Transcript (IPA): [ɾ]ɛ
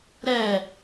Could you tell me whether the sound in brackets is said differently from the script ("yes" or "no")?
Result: no